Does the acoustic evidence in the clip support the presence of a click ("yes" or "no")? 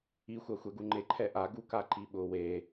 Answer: yes